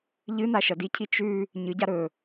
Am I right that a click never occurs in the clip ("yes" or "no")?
yes